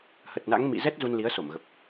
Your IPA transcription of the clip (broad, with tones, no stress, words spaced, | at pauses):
hə˨˩t̚na̰˧˥ŋmḭ˧˨ zɛ˦˥t̚ zu˧nli˨˦ə̯so˧˩mɣə˨˩p̚